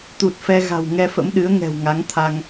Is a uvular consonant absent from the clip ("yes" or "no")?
yes